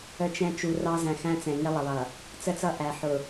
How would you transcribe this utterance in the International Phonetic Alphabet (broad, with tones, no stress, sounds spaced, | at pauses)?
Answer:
ə˨ t͡ʃ ɛ̃˨ t͡ʃ u˨ r ɑ˦ z æ̃˨ x æ̃˦ t͡s ɛ̃˨ ŋ ɪ˦ lˠ ə˨ lˠ ʌ˨ | t͡s ə˦ t͡s ʌ˦ ʔ æ˨ ħ ʊ˨